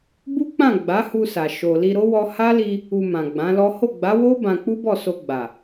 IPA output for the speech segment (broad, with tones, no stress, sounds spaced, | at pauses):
b u˦ k͡p ã˦˨ ɡ͡b a˨˦ h u˧ s a˨ ʃ o˨ l i˧ ɾ o˦ w ɔ˧ h a˦ l i˧ | u˧ m ã˨ ɡ͡b ã˨˦ l ɔ˦ h o˦˨ ɡ͡b a˨˦ w o˦ b ã˧ k͡p u˦ b ɔ˦˨ s o˧ ɡ͡b a˨